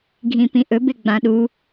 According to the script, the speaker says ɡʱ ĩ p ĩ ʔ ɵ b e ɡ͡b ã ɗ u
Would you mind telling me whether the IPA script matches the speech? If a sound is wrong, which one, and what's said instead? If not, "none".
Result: none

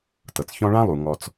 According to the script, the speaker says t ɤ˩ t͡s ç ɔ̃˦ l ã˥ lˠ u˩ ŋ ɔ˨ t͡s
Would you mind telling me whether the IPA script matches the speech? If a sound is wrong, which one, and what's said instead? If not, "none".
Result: l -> ɭ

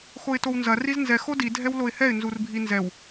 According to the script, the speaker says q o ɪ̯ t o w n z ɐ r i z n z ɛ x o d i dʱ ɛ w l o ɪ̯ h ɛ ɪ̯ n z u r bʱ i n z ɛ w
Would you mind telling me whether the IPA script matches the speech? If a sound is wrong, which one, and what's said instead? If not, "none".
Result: q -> x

